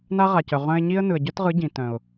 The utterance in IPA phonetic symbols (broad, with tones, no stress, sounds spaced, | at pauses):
n a˦ ʁ a˨ c œ˨ ʁ œ̃˧ ɪ̯ ɲ i˦ ə̯ n ɯ˨ ə̯ ɟ œ˦ t ʁ ɯ˨˦ ɟ ĩ˨ t œ̃˨ ʊ̯